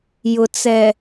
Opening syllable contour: low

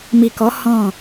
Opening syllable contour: low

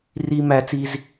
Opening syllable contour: high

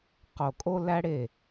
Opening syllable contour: low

